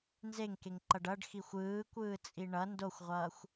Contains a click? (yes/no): yes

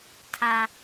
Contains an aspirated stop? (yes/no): yes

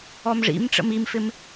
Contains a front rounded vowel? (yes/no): no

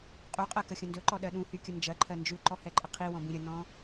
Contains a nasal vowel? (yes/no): yes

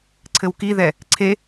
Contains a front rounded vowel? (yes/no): no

